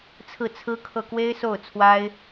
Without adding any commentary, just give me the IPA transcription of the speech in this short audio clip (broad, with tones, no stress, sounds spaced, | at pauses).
t͡sʰ ɹ̩˥˩ t͡sʰ ɹ̩˥ kʰ ɤ˥˩ k w e˥ ɪ̯ s o˥˩ ʊ̯ t͡sʰ w a˥ ɪ̯